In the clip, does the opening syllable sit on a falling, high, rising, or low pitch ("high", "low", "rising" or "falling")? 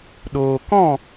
low